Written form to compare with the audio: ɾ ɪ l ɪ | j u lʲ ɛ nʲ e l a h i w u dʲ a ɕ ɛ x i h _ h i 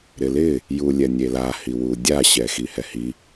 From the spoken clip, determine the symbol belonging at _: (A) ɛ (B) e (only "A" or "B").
A